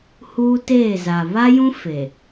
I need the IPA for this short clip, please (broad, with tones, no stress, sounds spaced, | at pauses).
h uː˦ t eː˦˨ z a˨ β a˦ j ũ˦ f e˨